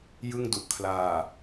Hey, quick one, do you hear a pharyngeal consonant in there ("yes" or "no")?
no